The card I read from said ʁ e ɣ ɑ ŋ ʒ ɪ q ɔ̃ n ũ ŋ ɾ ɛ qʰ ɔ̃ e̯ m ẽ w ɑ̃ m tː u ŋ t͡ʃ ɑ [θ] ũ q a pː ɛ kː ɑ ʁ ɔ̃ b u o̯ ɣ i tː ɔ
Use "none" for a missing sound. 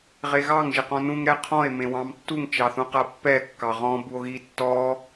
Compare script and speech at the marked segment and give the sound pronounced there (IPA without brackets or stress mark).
θ